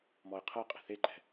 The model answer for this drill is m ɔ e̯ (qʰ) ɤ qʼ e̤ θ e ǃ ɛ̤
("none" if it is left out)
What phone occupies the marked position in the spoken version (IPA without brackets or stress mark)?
qʰ